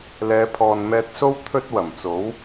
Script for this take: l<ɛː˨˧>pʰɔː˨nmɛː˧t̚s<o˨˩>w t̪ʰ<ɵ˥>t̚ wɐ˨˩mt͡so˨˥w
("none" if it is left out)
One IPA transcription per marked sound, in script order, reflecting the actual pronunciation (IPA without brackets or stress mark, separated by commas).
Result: ɛː˨˧, o˥, ɵ˥